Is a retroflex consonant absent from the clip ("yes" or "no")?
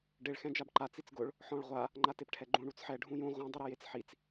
no